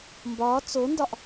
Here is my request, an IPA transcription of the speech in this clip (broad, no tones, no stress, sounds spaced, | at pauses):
m b ɒː t͡s o n d ɒ ʔ